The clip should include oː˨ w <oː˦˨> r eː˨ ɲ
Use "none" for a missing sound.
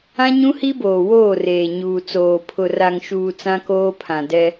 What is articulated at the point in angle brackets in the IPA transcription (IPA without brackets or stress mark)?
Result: oː˦˨